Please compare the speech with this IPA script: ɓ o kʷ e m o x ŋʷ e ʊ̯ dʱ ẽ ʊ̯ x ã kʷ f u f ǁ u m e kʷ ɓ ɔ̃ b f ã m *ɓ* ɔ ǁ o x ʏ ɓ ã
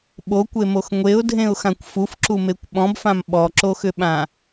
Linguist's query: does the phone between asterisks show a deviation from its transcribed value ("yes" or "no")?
no